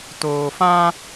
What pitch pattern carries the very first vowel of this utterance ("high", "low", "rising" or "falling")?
low